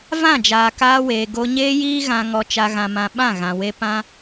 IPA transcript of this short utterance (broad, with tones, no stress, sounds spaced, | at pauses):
v ã˦˨ d͡ʒ aː˨ k aː˧ w eː˨ ɡ o˧ ɲ eː˦ j iː˦ ɣ ã˧ ŋ ɔ˧ t͡ʃ a˧ ɣ ã˧ m ã˧ ɓ ã˦˨ ɣ ã˨ w e˧ p ã˦